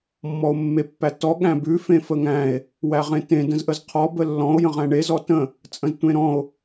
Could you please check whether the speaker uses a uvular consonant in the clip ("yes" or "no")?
yes